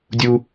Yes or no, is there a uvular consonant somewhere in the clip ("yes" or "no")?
no